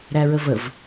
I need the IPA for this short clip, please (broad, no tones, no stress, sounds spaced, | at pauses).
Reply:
ɾ æ ɹ ə v ə v